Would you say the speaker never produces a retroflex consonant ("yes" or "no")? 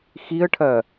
no